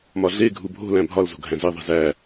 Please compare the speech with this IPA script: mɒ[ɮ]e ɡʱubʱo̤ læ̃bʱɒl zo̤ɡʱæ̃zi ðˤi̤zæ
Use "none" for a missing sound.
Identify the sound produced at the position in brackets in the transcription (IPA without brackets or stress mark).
ɮ